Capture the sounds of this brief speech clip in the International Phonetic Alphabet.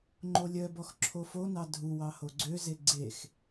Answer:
ŋ͡ǃolʲœbɔx ǁʰofonɑ dʱuwɑ hoɡ͡ǀøze ɡ͡ǀex

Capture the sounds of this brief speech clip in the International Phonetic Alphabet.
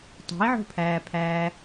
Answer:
tˤe̤i̯ʕo̤pʰæːpʰæː

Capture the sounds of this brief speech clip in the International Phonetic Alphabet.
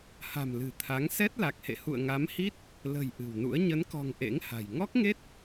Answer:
ha̤˨˩m lɨ̤˨˩ t̪ʰa˨˦ŋ sɛ˦˥t̚la˨˩k̚hḛ˧˨ hṵ˧˨ə̯ŋa˨˦mhi˦˥t̚ | lə̤˨˩j ʔɨ̤˨˩wnṵ˧˥ə̯ ɲə˨˦nkɔ̤˨˩ŋ ʔḛ˧˥ŋha̤˨˩j ŋɔ˦˥k̚ŋe˦˥t̚

